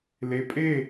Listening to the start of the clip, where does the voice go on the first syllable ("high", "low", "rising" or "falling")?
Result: low